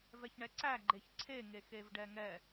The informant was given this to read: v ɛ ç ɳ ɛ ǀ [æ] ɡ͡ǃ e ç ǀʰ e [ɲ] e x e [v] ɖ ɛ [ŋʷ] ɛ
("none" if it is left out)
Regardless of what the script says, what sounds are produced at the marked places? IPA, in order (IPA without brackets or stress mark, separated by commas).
æ, ŋ, v, ŋ